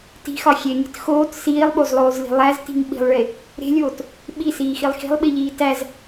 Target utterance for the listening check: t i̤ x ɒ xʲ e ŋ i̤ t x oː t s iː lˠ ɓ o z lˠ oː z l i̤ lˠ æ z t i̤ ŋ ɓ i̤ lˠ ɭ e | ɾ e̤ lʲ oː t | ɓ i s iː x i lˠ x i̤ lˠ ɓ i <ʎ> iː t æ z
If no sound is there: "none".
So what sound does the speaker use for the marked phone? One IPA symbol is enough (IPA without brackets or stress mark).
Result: ʎ